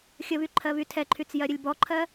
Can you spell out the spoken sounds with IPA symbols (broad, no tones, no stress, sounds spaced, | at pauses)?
xʲ ə β y ǃʰ ɜ β y tʰ ɛ ǃʰ y t͡s j ɜ ɾʲ ə lʲ b ɔ ǃʰ ɜ